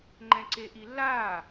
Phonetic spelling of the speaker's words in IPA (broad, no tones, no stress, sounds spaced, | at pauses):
ŋ͡ǃ ɛ̃ ǀ e ʔ i lː aː